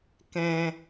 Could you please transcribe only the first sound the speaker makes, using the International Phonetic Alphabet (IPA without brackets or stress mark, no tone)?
k